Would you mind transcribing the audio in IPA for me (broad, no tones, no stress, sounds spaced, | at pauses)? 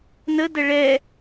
n ə d ə ɭ ɛ